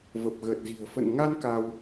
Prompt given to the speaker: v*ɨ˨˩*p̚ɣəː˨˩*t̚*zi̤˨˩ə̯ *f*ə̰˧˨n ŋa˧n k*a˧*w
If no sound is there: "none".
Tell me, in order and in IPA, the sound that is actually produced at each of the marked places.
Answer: ə˨˩, t̚, f, a˧

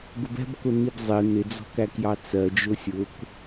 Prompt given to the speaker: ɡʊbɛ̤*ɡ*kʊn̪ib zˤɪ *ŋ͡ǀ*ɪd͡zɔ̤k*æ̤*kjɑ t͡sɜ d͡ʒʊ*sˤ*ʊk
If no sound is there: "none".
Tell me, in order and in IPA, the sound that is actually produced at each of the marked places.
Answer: b, n̪, æ, sʲ

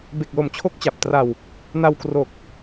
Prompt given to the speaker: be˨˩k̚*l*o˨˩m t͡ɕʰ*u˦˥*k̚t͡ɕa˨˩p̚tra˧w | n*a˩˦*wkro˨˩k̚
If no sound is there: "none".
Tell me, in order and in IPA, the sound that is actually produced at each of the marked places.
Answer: l, o˦˥, a˧

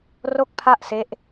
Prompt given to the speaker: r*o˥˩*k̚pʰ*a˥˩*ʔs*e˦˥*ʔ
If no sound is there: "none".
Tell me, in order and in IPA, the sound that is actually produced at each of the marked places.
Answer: o˥˩, a˥˩, e˦˥

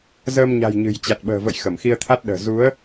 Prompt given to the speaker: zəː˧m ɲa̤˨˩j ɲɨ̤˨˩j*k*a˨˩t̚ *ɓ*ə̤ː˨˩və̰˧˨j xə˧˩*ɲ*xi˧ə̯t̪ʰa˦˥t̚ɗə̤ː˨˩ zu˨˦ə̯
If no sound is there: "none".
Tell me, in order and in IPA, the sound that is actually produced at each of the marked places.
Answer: t͡ɕ, ɓ, m

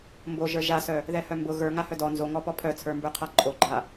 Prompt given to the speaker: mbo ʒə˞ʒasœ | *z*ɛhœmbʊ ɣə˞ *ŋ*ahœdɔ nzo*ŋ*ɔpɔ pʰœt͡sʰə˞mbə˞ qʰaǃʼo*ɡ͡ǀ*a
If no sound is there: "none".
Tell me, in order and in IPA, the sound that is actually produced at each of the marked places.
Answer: ð, ŋ, ŋ, ɡ͡ǃ

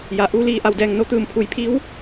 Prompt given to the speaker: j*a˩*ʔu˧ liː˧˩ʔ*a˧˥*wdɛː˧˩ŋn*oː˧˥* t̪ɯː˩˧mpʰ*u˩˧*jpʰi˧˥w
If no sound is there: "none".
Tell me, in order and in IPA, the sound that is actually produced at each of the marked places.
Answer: a˩, a˧˩, o˧˥, u˩˧

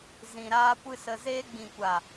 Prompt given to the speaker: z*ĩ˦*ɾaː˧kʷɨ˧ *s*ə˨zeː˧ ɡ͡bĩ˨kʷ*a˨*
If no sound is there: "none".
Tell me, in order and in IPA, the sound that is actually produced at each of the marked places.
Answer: ĩ˨, s, a˨

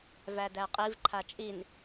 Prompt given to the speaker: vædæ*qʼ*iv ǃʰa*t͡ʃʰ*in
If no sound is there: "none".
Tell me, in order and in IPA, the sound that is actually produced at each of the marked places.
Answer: qʼ, t͡ʃʼ

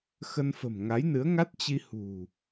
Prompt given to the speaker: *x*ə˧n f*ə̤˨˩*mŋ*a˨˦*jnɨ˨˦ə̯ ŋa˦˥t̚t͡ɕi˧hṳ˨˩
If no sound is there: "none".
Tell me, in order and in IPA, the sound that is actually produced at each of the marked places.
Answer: x, ə̤˨˩, a˨˦

